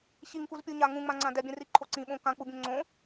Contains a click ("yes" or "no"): yes